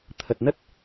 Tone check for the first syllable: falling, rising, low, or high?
low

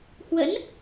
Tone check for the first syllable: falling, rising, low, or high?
rising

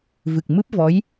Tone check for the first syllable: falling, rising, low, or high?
low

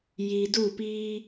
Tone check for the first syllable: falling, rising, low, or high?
low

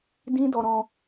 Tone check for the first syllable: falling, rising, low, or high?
high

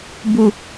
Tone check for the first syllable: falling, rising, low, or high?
low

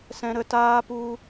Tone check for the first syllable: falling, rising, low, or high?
high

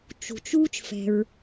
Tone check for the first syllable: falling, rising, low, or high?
low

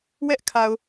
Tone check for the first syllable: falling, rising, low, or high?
high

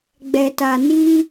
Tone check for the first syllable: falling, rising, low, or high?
low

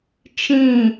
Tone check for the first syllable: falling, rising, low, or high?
falling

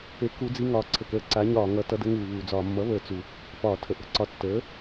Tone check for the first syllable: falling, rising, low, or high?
rising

